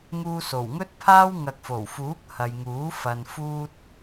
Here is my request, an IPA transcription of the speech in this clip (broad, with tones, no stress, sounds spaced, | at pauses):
ŋ uː˧ s o˨˩ w ŋ ɵ˥ t̚ pʰ aː˥ w ŋ ɐ˨ k̚ f o˨˩ w f uː˨˥ k̚ h ɐ˨ j ŋ uː˨˥ f ɐ˧ n f uː˥ t̚